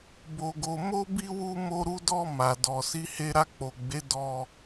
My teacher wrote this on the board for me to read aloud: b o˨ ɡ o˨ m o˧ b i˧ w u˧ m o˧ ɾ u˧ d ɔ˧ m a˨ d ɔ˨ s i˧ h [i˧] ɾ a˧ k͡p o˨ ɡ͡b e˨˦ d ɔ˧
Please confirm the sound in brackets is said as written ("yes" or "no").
no